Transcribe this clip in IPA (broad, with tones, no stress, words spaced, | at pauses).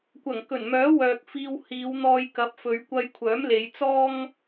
kʷɐ˨˩ŋkɵ˨˩nmœː˨˥wœː˨k̚ fiː˨w hiː˨˧wn̪ɔː˧j kɐ˨˥p̚fɵ˨˧ɥ kʷɐ˧jkʷʰœː˨˥mle˨˧jt͡sɔː˥ŋ